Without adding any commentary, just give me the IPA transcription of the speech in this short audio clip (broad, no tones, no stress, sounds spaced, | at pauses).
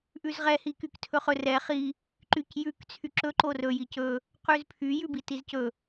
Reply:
ʔ ʉ z ʁ ɛ h i k y k tʰ ɵ χ ɵ r ɛ χ i | ǃ y c j ʉ k t͡sʰ y ǁ ɵ ǃ o r ɵ j i c ɵ | q ʉ z pʰ y j ʉ b i t i z c ɵ